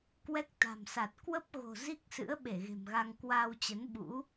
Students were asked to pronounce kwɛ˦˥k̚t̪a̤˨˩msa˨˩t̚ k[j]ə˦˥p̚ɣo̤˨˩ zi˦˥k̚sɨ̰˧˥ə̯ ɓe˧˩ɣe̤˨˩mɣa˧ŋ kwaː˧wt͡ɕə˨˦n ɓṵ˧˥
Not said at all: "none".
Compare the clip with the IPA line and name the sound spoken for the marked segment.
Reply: w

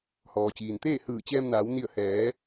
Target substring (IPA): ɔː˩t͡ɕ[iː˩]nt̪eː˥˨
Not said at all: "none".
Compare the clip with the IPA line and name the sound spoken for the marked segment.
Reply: iː˩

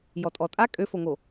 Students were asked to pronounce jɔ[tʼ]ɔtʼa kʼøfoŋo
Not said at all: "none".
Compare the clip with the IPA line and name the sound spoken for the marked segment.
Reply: tʼ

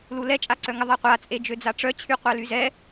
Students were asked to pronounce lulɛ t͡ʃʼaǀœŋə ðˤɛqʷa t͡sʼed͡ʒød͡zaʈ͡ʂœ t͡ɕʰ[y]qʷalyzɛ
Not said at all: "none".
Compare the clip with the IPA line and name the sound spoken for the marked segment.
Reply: y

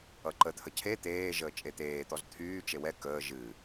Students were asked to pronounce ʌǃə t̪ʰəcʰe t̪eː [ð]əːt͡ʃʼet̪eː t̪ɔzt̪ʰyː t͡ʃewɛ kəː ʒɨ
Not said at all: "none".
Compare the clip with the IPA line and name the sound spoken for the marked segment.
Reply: ʒ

